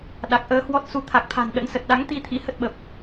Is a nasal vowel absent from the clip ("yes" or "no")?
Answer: yes